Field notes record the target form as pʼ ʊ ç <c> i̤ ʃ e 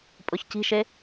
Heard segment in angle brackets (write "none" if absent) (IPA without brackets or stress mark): c